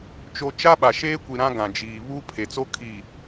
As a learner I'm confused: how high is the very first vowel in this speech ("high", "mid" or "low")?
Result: mid